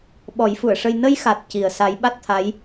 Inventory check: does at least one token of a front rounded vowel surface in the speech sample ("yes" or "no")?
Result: no